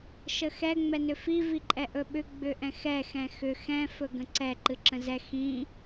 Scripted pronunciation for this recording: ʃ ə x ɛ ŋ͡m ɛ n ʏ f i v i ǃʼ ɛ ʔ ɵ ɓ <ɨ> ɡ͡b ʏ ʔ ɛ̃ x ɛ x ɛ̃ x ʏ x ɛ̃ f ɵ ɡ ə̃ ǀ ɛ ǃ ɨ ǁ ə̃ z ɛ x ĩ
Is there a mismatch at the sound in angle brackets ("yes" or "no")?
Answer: yes